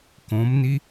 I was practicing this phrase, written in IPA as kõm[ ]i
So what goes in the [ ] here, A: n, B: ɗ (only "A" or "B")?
A